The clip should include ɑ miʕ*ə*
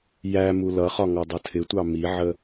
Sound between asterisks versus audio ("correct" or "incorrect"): correct